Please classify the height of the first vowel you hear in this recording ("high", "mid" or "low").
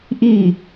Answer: high